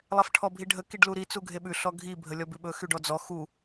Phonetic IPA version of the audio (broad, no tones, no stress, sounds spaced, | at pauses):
lˠ ɛ f ʈʰ ɔ bʱ i ɖʱ ə k i ɖ l u ɾ i t͡s u ɡʱ e ɓ ʉ ɬ ɔ ɡʱ i bʱ ə lʲ ɔ b ʉ ɓ ɵ x y ɖ ɔ d͡z ɔ x u